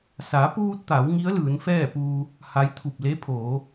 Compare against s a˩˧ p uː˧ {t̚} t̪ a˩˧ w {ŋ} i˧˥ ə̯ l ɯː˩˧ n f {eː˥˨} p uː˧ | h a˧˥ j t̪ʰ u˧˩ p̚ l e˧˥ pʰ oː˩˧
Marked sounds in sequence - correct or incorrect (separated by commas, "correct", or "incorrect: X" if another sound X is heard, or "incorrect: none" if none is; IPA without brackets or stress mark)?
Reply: correct, correct, incorrect: ɛː˥˨